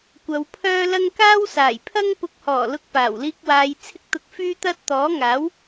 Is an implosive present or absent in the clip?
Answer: absent